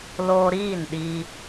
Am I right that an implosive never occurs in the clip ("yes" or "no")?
no